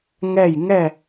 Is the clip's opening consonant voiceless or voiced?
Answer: voiced